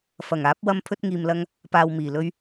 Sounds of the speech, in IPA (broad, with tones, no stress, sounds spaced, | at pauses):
f ɐ˨˩ ŋ aː˨˥ p̚ w ɐ˧ m pʰ ɵ˧ t̚ ŋ iː˨ m l ɐ˧ ŋ | p aː˨ w m iː˨˩ l ɵ˧ ɥ